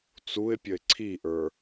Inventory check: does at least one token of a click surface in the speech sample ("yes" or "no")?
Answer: yes